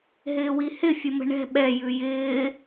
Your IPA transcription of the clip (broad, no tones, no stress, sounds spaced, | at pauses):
ɦ ɪː w i h ɪ fʲ ə m ə̤ ɳ ɛ̤ ɓ ɛ j ʉ j ɪː